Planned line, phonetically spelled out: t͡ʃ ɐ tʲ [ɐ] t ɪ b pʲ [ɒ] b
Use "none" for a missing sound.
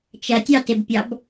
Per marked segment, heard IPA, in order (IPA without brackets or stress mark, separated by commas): ɑ, ɑ